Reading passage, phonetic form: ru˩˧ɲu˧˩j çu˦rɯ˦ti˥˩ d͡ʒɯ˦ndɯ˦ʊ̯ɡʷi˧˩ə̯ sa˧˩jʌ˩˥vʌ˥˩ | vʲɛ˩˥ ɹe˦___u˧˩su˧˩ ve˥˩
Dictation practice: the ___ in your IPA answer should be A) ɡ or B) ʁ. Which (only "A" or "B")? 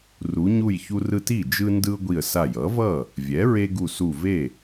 A